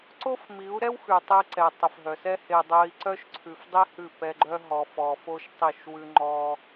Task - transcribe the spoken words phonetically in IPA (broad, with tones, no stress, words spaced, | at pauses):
ǀo˦fmi˨˦u̯ɾɛ˦w xʉ˨tˤe˧ǀɛ˨ tˤə˨fɦœ˨sɛ˦he˧ dˤœ˧i̯ǀœ˦ʃ ǀʰʉ˧f dˤi˦hʉ˦˨ pɛ˧ ɡ͡ǃœ˦ɦɔ˧ fɔ˧fo˦ʃtˤi˦˨ʃ wʉ˧ ŋ͡ǃɔ˧